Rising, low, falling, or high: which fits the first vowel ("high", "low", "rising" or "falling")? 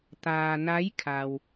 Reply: low